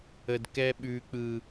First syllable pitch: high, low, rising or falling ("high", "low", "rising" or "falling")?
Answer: high